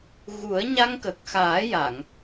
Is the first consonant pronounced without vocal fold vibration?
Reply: no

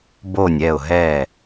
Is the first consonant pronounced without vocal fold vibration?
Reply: no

